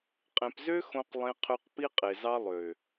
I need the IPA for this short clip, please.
qʼ ẽ˨ p z ø˦ x õ˦ q lˠ ẽ˦ qʰ ø˦ q p i˦ qʼ e˨ z ɑ˦ lˠ ø˨

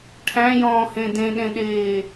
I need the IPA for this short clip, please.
ʈʰ æ̃ j ɔ̃ː h ẽ d ẽ ɗ ẽ ɗ eː

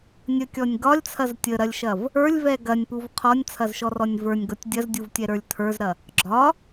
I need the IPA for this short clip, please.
nʲ ə kʲ ɔ nʲ ɡ ɒ lʲ t͡sʰ ɐ z tʲ ə ɾ ɐ lʲ ʃ ɐ v | ə˞ lʲ v ɛ ɡ ɐ nʲ p u v qʰ ɔ nʲ t͡sʰ ɐ z ʃ ɔ r ɔ nʲ v ə˞ nʲ ɡ ɔ tʲ dʲ ɐ z dʲ u v tʲ ɛ ɾ ə˞ lʲ tʰ ə˞ z ɾ ɐ | ɡ͡ǁ ɒ

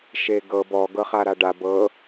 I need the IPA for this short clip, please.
ʃ e ɡ ɤ b ɔ ɡ ɤ χ a ɾ a ɖ a b ɤ

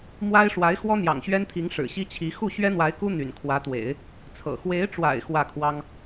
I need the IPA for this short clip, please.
m w a˥ ɪ̯ ʂ w a˧˥ ɪ̯ x w ɔ˥ n̪ j ɑ̰˨˩ ŋ ɕ ɥ ɛ˥ n t̪ʰ i˧˥ ŋ ʂ ɻ̩˨˩ ɕ i˥ t͡ɕʰ i˧˥ x u˥˩ ɕ ɥ ɛ˥ n̪ w a˧˥ ɪ̯ k u˥ n̪ y̰˨˩ n kʰ w ä˧˥ t̪ w ḛ˨˩˦ ɪ̯ | t͡sʰ ɤ̰˨˩ x w e˧˥ ɪ̯ ʈ͡ʂ w a̰˨˩ ɪ̯ x w ä˥˩ kʰ w ɑ˥ ŋ

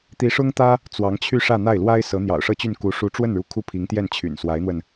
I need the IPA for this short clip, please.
t̪ i˧˥ ʂ ʊ˥ ŋ t̪ ä˥ | t͡s w ɑ˧˥ ŋ t͡ɕʰ y˥˧ ʂ ä˥˧ n̪ a˥˩ ɪ̯ l w a˥ ɪ̯ s ɤ˧˥ n̪ j ɑ̰˨˩ ʊ̯ ʂ ɤ˥˧ t͡ɕ y˥˩ n k u˧˥ ʂ u˧˥ ʈ͡ʂ w ə˥˩ n ɻ u˧˥ kʰ u˥˩ pʰ i˧˥ ŋ t̪ j ɛ˥˩ n t͡ɕʰ y̰˨˩ n s w a˧˥ ɪ̯ n̪ w ə˧ n

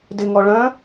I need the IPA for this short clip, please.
d ɪ ŋ ɔ ɭ œ̃

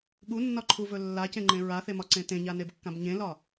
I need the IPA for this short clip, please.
ɠ u nː ɒ ǃʰ u v ɵ lː a c ẽ ŋ͡ǃ ẽ ɹ a θ e m ɒ ǀ ẽ t ẽ ɲ a n e b kː ã b ɲ ẽ l ɒ

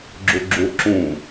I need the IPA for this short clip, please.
ɡ͡ǁ u ɡ͡ǁ u ǁ ũ

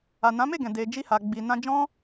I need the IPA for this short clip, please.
a˨ n ã˨˦ m e˦˨ ɡ ɛ̃˨ d e˧ d͡ʒ i˦ h a˧ ɡ͡b i˧ n ã˦ d͡ʒ ɔ̃˦

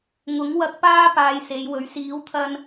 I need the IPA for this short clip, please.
ŋ ʊ˨˥ ŋ w ɐ˧ k̚ p aː˥ p aː˧ j s e˨˧ j w ɵ˨˥ ɥ s iː˨˥ w t̪ʰ ɐ˧ n

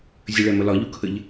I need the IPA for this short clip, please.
zʲ ə ɭ ɛ m ə l ɒ ʎ u kʰ ə ʎ

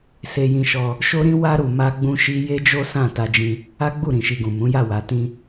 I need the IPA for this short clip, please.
s e˧ j ĩ˧ ʃ ɔ˧ | ʃ o˦ ɾ ĩ˦ w a˦ ɾ u˧ m a˦ ɡ͡b ũ˦ ʃ i˦ j e˦ d͡ʒ o˦ s ã˦˨ t a˧ d͡ʒ ĩ˧ | a˦ ɡ͡b u˦˨ ɾ ĩ˨ ʃ i˨ ɡ ũ˨ m ũ˨˦ j a˦˨ w a˨ t ĩ˧

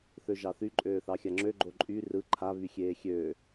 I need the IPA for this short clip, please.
θ ø ʒ ɑ θ y ǃʼ øː θ ɑ xʲ a ŋ͡ǁ ø ɡ͡ǃ o ǃʼ y r ɯ ǃʰ a β y xʲ eː xʲ øː

